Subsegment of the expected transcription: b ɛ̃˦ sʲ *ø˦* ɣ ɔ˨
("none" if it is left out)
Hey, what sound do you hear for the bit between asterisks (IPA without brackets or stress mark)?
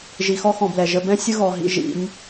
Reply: ə˦